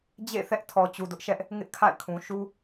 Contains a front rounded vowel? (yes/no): no